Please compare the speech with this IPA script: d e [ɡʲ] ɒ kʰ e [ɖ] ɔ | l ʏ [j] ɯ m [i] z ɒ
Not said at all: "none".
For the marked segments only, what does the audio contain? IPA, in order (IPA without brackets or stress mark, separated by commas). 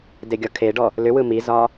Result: ɡʲ, ɖ, w, i